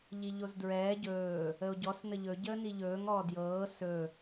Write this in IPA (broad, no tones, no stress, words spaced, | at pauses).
ʎiʎozdɹɛː ɟɵː | əo̯ɟɔs nəʎɵ ɟəːniʎɵːŋ ɔːdjɤː sɵ